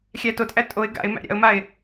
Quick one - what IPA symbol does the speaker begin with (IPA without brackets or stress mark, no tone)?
xʲ